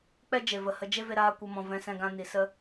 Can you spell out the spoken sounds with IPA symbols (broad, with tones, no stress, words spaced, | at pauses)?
k͡pɛ˦d͡ʒe˨ və˨hə˧ d͡ʒe˦ve˧ɾaː˧ kʷə˧mɔ̃˨vɛ̃˧ sɛ̃˧ɡã˧ni˨sə˦